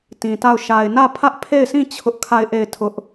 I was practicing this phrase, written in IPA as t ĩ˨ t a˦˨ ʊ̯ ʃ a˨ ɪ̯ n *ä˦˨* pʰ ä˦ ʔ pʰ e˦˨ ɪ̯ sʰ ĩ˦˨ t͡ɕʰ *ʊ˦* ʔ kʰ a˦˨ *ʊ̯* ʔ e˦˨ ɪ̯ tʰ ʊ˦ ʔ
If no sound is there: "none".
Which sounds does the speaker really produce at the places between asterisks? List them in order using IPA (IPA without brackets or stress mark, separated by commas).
ä˦˨, ʊ˦, ɪ̯